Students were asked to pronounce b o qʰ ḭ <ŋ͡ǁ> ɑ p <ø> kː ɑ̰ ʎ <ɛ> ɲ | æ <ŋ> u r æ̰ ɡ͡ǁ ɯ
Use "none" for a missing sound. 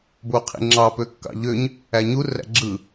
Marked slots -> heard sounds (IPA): ŋ͡ǁ, ø, ø, ɲ

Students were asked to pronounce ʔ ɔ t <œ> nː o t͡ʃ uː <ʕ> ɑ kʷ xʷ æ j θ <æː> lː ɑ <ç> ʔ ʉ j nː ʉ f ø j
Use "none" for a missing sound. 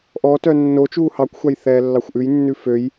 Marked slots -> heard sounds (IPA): œ, h, ɛː, xʷ

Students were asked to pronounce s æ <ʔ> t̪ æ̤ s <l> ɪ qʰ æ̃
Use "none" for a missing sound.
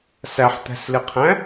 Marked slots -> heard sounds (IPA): ħ, l

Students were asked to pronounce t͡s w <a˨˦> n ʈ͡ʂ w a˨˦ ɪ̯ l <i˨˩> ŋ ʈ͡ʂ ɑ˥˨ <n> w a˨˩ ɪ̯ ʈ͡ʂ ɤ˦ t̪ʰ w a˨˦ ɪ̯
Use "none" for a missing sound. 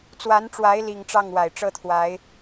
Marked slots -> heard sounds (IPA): a˨˦, i˨˩, ŋ

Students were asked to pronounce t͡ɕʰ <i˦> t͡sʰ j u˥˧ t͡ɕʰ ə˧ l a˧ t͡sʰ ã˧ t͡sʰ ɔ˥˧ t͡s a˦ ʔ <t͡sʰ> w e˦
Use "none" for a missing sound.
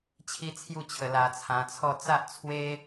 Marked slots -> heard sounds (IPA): i˦, t͡sʰ

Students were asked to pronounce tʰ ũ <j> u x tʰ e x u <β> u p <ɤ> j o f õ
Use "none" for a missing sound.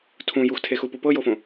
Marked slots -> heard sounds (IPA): j, p, ɤ

